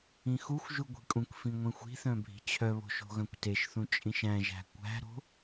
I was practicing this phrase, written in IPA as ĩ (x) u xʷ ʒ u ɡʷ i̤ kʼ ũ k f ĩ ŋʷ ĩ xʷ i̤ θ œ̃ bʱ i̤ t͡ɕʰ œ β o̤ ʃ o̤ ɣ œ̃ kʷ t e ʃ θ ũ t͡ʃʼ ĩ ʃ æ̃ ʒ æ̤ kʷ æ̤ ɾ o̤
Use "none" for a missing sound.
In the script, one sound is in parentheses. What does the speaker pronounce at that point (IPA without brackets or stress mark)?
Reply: x